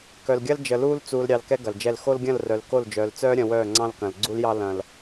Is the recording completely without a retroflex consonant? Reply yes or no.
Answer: yes